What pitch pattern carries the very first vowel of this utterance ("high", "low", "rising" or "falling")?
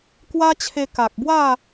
high